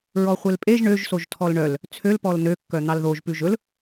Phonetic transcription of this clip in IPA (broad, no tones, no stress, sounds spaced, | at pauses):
ɹ ɔ χʷ e l pʼ e ʒ ɳ ø ʒ s o ʒ tʰ ɔ l ɳ œ l | t͡sʰ ø l p ɔ l n ø kː œ n̪ ɑ l ð o ʒ p ʉ ʒ ɵ l